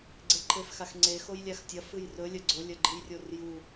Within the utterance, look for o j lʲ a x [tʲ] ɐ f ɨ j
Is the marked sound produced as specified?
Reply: yes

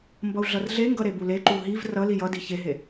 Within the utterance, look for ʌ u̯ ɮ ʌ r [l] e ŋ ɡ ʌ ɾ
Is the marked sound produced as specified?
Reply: no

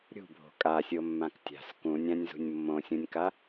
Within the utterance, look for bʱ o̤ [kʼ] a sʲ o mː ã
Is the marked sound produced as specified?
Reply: yes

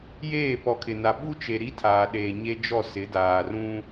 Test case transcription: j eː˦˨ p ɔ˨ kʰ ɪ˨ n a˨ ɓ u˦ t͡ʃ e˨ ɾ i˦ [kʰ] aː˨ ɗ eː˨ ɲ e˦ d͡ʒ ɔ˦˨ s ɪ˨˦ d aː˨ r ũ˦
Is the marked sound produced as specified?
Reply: no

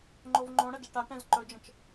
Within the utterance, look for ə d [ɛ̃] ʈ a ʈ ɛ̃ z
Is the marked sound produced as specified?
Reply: no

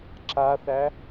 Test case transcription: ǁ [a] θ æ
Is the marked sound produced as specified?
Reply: yes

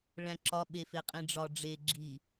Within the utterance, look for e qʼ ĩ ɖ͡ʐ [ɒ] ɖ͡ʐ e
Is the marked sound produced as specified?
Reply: yes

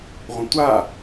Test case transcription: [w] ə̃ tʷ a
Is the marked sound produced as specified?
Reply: no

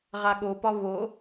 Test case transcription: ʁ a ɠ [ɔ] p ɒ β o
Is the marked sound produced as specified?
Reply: no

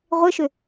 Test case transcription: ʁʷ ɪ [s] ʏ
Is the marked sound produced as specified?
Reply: no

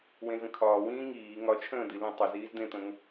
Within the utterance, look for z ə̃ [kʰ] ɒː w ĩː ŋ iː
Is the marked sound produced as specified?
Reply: yes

